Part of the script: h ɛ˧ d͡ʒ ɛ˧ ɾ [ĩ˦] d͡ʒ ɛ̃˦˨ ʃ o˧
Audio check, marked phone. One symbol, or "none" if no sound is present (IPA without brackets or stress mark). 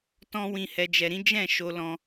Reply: ĩ˦